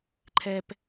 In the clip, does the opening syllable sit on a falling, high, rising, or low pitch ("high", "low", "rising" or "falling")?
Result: low